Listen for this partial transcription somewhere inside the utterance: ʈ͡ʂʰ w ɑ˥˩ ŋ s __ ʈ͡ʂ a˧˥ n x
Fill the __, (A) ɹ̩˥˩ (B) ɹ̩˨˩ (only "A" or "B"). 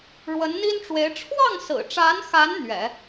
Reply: B